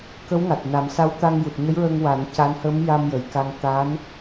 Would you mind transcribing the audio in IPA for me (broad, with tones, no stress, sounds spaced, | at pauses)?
k ə˧˥ w ŋ a˨˩ t̚ n a˨˩˦ m s a˧˥ w t̪ a˧ ŋ j u˨˩ t̚ ɲ ə˧˥ j ɹ əː˧ ŋ w a˨˩˦ n c a˧˥ n h ə˧˥ m j a˧ m j ə˨˩˨ j k a˧ ŋ t̪ a˧˥ n